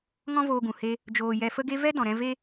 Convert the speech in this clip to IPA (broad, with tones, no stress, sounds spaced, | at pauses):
ŋ ɔ̃˦ v oː˧ ɡ ũ˨ h e˧ | d͡ʒ oː˨ j ɛ˨ f ə˧ ɡ e˧ v ɛ˦ d ɔ̃˨ ɾ ɛ̃˧ v e˦